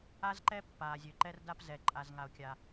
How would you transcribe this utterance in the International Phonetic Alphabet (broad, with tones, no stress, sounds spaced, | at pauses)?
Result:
a˥ z ǃ ɛ˥ pː aː˩ zʲ ø˩ ǃ ɛ˥ r d a˥ p z ɛ˩ ǃʼ a˩ z ŋ a˩ o̯ kʲ a˩